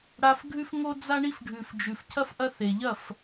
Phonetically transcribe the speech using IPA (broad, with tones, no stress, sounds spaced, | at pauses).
ɽ a˧ f ɡʱ ʉ˦ f ŋ o˦ d͡z a˦ ɳ i˦ f ɖʱ ʉ˨ f d͡ʒ ʉ˨ f cʰ ɐ˦ f ʔ ɐ˦ θ e˨ ʎ ɐ˦˨ f